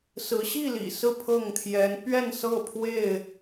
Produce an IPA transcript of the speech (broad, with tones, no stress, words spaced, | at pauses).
sɹ̩˨˦ ɕi˥˨lḭ˨˩ sɹ̩˥˨pʰɤ˥˨ŋt̪ʰjɛ˨˦n pɥɛ˥˨nsɤ˥˨pʰwe˥˨ɪ̯